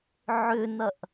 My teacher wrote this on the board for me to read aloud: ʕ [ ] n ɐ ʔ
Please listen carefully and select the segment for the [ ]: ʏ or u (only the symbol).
ʏ